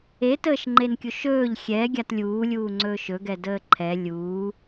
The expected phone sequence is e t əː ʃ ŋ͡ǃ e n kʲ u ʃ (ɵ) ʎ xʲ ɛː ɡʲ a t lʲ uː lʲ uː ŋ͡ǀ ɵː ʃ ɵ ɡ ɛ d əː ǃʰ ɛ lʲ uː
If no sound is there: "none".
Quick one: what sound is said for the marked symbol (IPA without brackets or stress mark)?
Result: ɵː